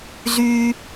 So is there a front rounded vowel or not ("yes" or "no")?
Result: yes